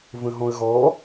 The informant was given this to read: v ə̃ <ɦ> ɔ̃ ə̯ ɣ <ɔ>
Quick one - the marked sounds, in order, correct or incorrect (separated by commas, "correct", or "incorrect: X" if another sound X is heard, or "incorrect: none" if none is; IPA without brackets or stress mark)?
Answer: correct, correct